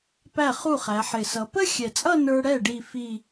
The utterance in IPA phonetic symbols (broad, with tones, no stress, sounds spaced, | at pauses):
p æ˥˩ χ u˥˩ χ æ˩˧ ħ ɪ˨˩ s ʌ˩˧ p ə˥ xʲ ɛ˨˩ t͡sʼ ʌ˥˧ n ə˞˥ ɽ ɛ˥˩ ɖ i˥˧ f i˥˧